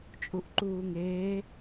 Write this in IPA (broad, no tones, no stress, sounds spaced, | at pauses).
t͡ʃʼ u ʔ ǃ uː ŋ eː